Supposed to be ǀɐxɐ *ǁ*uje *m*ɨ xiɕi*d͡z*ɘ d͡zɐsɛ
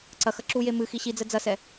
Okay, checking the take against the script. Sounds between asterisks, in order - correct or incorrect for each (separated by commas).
correct, correct, correct